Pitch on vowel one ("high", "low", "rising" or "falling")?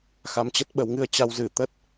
rising